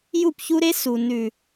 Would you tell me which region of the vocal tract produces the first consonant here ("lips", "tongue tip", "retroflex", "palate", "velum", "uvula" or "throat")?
palate